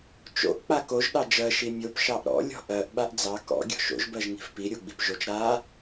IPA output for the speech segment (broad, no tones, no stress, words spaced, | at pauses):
t͡ʃo̰ʔ k͡pakoʒ ɗɑd͡ʒɜ ʃimʲop ʃɑʔɾɔ̰ lʲɔ̤ʔɜʔ ɓaʔd͡zɑ kɔ̰ ɡʲɔ̤ʃo̰ʒ bɜʒŋi̤fpi ɾʲoɡ͡bipʒot͡ʃ ɾa